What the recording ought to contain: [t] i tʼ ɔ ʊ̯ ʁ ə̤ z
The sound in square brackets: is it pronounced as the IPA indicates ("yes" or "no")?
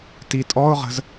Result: yes